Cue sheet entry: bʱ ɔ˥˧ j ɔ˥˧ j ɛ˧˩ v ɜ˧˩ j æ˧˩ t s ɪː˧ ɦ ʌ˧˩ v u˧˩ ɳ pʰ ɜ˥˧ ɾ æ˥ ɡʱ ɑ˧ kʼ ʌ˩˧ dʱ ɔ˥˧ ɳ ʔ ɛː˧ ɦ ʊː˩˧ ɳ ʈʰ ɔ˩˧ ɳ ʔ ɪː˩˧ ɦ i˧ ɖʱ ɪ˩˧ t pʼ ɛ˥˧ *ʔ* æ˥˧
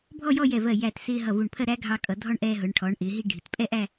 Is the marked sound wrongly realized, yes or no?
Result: no